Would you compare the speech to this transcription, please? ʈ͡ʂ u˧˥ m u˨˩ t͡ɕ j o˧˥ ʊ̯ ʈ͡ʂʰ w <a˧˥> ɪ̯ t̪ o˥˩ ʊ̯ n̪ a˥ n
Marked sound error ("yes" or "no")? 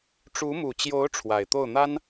yes